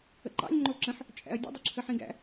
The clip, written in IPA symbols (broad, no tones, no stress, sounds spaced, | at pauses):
ə̰ ǃ ɑ̰ lʲ ŋ͡ǃ o ǁ ə̃ ħ | t͡ʃʼ æ̰ ɐ̯ dʲ ə̰ dˤ o ǁʰ ə ħ ĩ ɡ æ̰